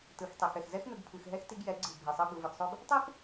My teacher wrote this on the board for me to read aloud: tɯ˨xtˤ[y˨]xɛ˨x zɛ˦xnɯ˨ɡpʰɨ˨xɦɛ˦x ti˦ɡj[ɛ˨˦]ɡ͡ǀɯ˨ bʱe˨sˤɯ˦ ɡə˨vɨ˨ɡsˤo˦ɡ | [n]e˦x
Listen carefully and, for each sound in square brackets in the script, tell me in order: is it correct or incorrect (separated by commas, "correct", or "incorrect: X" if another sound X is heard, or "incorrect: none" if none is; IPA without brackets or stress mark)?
incorrect: i˨, correct, incorrect: tˤ